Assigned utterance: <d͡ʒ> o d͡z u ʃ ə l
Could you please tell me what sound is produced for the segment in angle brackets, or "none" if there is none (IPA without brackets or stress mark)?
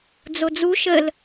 d͡z